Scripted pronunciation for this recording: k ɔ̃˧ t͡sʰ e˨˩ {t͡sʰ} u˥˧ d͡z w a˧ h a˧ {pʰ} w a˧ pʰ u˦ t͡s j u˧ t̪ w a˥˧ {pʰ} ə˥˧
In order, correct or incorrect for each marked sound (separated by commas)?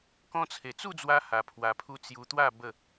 incorrect, correct, incorrect